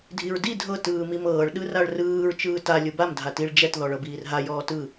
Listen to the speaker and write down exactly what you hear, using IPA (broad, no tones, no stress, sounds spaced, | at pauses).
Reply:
dʱ i ɹ d i dʱ ɤ t ɯː m i m ɤː ɭ ɗ ɯ r a ɭ r ɯː ɹ t͡ʃ ɯː t a lʲ ɯ b a m dʱ a t i ɭ d͡ʒ ɛ t ð ɔ ɭ ɤ b iː r ɦ a j ɔː t ɯ